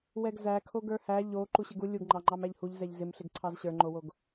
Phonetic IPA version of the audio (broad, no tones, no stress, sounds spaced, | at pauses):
w ɛ ɡ z æ kʰ o ɡ ə˞ h æ ʎ o ǃ u ɕ ɪ ɡ u lʲ u ɡ ŋ͡ǃ ɑ ŋ͡ǃ ɑ m æ ʎ h u ʎ z ɛ ʎ z ɪ m ɬ ɪ ɡ ǀʰ ɑ z ɕ ə˞ ŋ͡ǃ o w o ɡ